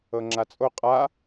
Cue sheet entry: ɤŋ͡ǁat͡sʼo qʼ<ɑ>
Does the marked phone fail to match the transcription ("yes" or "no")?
yes